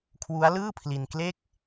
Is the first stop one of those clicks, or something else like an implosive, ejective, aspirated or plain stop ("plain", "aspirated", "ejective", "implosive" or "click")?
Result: aspirated